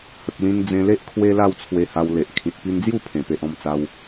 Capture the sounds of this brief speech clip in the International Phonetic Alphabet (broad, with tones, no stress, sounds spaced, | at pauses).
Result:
h ə˨ k̚ l ĩ˧ n d͡z ẽ˧ l e˦ ʔ kʰ w e˦ l a˥˧ w t͡sʰ w e˧ h a˧ w l e˨ ʔ kʰ ĩ˨ t̚ p i˧ n d͡z j u˥˧ pʰ ẽ˨˩ p e˨ ʔ ɔ̃˦ m t͡s a˦ w